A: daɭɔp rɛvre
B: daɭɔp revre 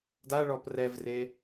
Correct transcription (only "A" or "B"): A